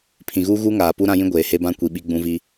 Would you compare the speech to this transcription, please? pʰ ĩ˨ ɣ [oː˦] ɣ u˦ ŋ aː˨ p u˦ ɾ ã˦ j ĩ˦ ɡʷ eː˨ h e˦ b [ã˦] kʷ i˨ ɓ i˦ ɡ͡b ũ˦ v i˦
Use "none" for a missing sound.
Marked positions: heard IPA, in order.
uː˦, ã˦

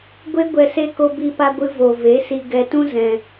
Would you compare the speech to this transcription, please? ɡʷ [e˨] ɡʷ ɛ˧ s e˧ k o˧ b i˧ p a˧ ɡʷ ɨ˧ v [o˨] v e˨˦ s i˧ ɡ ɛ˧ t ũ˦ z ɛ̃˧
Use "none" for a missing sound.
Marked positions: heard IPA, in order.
e˦, o˨

